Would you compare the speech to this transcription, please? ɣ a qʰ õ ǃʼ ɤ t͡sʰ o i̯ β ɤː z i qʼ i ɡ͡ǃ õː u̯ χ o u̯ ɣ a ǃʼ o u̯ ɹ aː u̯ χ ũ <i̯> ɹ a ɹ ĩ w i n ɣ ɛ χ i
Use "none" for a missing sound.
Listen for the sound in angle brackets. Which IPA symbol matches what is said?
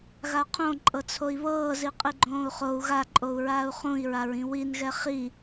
i̯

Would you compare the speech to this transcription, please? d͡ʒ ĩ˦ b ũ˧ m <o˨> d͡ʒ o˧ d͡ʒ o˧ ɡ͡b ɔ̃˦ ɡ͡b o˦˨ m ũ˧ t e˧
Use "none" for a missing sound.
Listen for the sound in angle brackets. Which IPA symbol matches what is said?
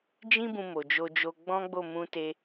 o˨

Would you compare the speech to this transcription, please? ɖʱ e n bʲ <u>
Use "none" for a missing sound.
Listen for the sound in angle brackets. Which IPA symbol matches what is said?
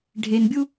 u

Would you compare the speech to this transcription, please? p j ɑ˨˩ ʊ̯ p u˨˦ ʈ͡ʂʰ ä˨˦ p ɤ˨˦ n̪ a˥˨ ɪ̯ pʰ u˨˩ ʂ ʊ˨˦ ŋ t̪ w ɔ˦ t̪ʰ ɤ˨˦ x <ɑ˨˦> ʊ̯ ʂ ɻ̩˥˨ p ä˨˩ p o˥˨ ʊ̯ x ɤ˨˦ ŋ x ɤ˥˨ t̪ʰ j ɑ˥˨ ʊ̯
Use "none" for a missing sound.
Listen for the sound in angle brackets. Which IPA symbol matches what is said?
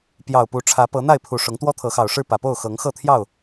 ɑ˨˩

